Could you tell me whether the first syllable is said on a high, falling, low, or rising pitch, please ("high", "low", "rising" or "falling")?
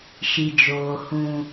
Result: low